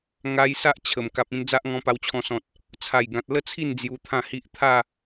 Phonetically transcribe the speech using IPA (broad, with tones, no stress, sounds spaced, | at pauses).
ŋ a˧ j s a˦ ʔ t͡ɕʰ ə˨˩ m k a˨ p̚ ĩ˧ n d͡z a˦ ʔ ŋ ɔ̃˧ p a˧ w t͡ɕʰ ɔ̃˧ s ɔ̃˨ t̚ | t͡sʰ a˨˩ j ɡ ã˨ t̚ l ə˦ t͡sʰ i˥˧ n d͡z j u˧ t̪ʰ ã˥˧ h i˦ ʔ t̪ʰ a˥˧